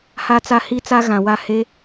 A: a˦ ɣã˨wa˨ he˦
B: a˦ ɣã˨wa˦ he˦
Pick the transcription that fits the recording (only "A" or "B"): B